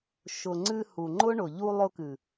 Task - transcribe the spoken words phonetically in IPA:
ʃʊ˨ŋ͡ǀɨ˧ hu˨ŋ͡ǃʊ˦ɳʊ˨ ʎu˧lˠʊ˧kɨ˨

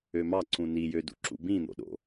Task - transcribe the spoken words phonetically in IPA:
ømɑǀũ nijødṵ ǁṵbĩn̪o̰ɗo̰

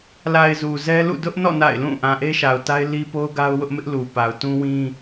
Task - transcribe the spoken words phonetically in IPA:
la˨ɪ̯ zu˨zɛ˦lṵ˦˨ dʊ˦ʔnɔ̰˦˨ na̰˦˨ɪ̯lũ˦˨ ʔã˨ʔe˦ʃa˨ʊ̯ta˦ɪ̯ li˦po˦ʊ̯ɡa˦ʊ̯ wʊ˦ʔmɪ˦ʔlu˨ pa˨ʊ̯tũ˦wĩ˦

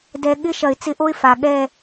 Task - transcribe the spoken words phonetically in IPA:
dɛ˨ ɠɪ˦ʃɐ˨ɪ̯ t͡sɪ˦ʔo˦ɪ̯ fa˨ ɠɛ˦˨

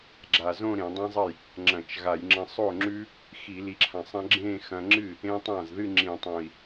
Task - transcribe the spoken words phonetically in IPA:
ɡ͡ǁa˨˩zõ˥˧ ɾẽ˧˩˧dˤẽ˦˥zˤɐ˥˩j | ŋ͡ǁɐ̃˧˩˧t͡ʃɣa˧˩˧j ŋ͡ǁɐ̃˧sˤo˥˩ŋ͡ǁʉ˦˥ | xi˧˩˧li˨˩ǁʰã˨˩sˤɐ̃˦˥ ɡ͡ǁẽ˥˧xɐ̃˧ŋ͡ǁɨ˥˩ | ẽ˦˥tˤã˥˩zðɨ˥˧ ŋ͡ǁĩ˧˩˧tˤõ˨˩i̯

